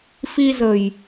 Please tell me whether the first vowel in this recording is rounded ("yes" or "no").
no